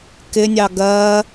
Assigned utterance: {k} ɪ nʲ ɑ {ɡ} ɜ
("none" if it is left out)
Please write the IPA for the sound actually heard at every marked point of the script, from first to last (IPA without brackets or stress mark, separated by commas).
k, ɡ